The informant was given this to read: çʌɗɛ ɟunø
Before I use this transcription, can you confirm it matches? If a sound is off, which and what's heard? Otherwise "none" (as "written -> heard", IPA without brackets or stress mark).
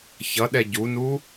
ø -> u